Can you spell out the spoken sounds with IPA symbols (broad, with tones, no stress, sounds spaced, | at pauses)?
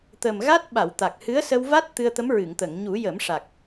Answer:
t̪ ə˨˩ m ɣ a˦˥ t̚ ɓ a˨˩˨ w t̪ a˨˩ k̚ h ɨ˧˥ ə̯ s ə˧ w v a˦˥ t̚ t̪ ɨ˧ ə̯ t̪ ə˧˥ m ɹ ɨ˨˩˨ ŋ t̪ ə˨˩˨ ŋ ɲ u˨˩˦ j ə˨˩˦ m ʂ a˨˩ k̚